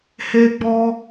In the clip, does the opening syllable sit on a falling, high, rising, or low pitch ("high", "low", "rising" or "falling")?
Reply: high